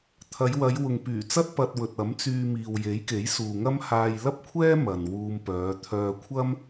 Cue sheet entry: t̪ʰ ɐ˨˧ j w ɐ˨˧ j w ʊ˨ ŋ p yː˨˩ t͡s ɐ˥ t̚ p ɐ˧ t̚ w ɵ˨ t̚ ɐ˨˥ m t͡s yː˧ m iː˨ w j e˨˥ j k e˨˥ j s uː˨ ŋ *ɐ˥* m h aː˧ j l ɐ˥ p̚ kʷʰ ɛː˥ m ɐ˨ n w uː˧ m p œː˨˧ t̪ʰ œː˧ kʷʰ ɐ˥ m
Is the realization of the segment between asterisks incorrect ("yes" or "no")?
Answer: no